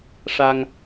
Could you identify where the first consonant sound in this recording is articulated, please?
retroflex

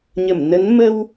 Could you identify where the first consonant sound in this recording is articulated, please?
palatal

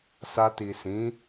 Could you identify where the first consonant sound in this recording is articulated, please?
alveolar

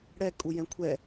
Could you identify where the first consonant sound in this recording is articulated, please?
retroflex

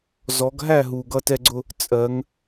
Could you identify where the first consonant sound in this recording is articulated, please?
alveolar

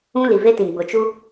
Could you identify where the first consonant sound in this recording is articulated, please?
alveolar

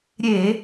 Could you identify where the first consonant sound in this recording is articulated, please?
alveolar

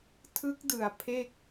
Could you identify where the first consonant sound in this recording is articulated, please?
alveolar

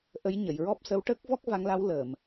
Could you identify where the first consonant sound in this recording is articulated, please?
glottal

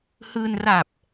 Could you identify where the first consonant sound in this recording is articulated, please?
glottal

